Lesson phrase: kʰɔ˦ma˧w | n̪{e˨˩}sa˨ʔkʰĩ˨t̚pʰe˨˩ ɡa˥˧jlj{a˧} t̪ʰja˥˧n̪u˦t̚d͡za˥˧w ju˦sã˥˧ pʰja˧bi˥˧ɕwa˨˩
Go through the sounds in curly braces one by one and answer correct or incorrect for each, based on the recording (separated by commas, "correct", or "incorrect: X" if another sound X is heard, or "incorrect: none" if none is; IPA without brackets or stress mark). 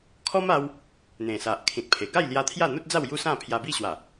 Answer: incorrect: ẽ˨˩, correct